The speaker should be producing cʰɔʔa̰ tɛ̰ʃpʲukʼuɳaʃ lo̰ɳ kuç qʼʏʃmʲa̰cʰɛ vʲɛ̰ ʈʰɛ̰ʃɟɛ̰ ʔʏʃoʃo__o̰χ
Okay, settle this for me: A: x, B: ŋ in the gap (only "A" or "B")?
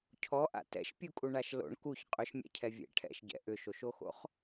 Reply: A